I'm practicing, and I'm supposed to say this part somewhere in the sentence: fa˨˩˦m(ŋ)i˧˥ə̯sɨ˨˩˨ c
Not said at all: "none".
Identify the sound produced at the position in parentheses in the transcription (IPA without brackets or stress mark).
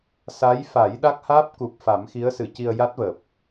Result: x